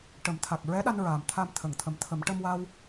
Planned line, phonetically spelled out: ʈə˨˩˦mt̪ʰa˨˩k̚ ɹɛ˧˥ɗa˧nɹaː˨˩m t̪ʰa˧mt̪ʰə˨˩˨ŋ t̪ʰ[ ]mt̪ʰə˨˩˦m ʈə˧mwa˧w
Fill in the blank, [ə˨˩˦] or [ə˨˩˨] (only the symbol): ə˨˩˦